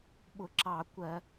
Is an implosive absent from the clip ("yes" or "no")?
no